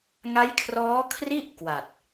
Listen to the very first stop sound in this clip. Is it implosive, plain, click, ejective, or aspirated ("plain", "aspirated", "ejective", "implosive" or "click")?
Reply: aspirated